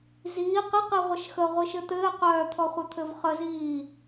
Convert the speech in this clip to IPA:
z iː q ɪ q i ʁʷ ə ʃ x ə ʁʷ i ʃ ɘ t̪ ɘː q œː t̪ʰ ɔ χʷ ɘ t̪ʰ ɘ v χ ə z iː

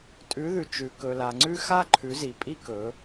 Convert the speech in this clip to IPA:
tʼ ʉ˨˦ ð ʉ˨ t͡ʃ ʉ˨ k ɵ˨ l a˨ ŋ͡ǀ ʉ˦ x a˦ ǃʰ ʉ˨˦ z i˨ pʼ i˦ k ɵ˨˦

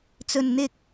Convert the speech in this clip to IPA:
t͡s ɵ˨ n n̪ ɪ˨ k̚

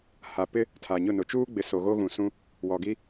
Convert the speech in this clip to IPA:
h a˨ p ɪ˦ | tʰ a˨ ɲ ʊ˦˨ n ʊ˨ t͡ʃ uː˦ ɡ͡b ɪ˨ s o˨ ɣ o˦ ɣ ũ˨ s ũ˦ | w ɔ˨ ɡ i˦

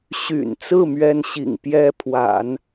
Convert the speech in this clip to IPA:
ɕ y̰˨˩ n t͡s ɹ̩˥˩ m ɥ ɛ˥ n ɕ ḭ˨˩ ŋ p j ɛ˥ pʰ w a̰˨˩˦ n

